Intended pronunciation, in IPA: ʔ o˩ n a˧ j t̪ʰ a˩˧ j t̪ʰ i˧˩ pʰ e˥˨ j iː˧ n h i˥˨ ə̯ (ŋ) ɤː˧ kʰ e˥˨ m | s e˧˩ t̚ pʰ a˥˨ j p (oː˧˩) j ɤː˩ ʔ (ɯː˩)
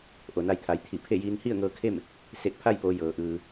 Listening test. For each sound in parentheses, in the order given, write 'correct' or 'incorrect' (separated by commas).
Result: correct, incorrect, correct